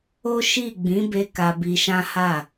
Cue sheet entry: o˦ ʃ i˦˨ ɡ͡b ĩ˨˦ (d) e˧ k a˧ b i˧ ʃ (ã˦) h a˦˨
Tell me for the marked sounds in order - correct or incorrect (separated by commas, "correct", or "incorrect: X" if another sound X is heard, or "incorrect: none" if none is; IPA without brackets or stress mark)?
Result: incorrect: b, correct